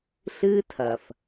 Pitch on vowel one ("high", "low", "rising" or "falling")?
high